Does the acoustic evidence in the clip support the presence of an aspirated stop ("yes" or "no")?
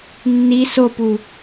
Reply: no